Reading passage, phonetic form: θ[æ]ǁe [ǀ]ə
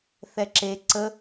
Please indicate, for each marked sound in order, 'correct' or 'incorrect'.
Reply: incorrect: ɛ, correct

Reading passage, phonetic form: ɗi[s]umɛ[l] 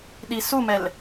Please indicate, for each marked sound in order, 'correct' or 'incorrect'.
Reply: correct, correct

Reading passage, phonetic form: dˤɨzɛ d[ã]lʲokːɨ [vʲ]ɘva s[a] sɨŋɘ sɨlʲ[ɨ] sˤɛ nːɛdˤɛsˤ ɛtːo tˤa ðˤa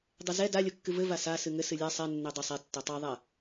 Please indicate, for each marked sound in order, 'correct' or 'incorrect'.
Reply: incorrect: a, incorrect: v, correct, incorrect: ɛ

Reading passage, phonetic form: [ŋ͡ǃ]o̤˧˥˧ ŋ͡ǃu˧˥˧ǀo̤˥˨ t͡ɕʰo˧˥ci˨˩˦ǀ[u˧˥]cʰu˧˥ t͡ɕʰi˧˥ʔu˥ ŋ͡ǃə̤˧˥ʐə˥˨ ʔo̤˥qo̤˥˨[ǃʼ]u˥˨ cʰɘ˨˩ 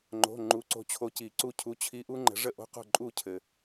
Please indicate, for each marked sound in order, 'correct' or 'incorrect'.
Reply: correct, incorrect: u˥˨, correct

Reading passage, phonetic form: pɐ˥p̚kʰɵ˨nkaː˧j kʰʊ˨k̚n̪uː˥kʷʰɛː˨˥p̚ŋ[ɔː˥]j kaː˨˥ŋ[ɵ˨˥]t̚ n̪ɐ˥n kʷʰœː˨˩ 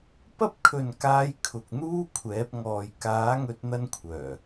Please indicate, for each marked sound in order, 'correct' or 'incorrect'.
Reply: incorrect: ɔː˨, incorrect: ɵ˧

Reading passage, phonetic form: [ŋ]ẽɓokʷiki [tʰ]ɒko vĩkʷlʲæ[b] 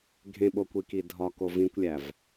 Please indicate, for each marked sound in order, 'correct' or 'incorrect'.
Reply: incorrect: ɡʱ, incorrect: dʱ, incorrect: v

